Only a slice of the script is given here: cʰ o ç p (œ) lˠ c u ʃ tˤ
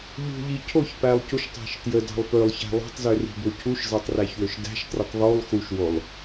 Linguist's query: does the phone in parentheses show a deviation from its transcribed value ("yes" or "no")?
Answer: yes